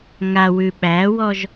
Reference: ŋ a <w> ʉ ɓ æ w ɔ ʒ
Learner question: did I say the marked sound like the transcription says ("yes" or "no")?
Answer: yes